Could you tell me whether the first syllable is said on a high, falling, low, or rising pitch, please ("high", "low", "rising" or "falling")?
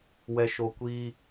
low